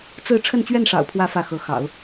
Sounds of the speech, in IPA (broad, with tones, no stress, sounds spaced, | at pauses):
t͡s ɹ̩˥˧ ʈ͡ʂʰ ə˥˧ n t͡ɕ ɥ ɛ˥˩ n ʂ ɑ̰˨˩ ʊ̯ pʰ w ä˧˥ f ä˥˩ x ɤ˧˥ x ɑ̰˨˩˦ ʊ̯